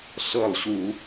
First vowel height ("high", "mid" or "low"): mid